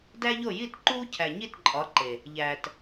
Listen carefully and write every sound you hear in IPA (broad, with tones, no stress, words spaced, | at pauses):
dæ˦ʎo˦˨ ji˦˨tǃuː˦ cʰæ˨ɲi˦˨tǃʼɒ˨˦ ǃe˨ | ʎæː˨t